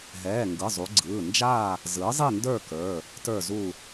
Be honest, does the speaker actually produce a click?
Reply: yes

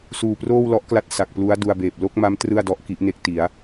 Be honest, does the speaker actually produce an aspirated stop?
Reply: no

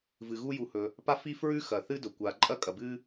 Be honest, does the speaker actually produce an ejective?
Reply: yes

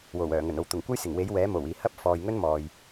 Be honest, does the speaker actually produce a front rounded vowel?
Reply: yes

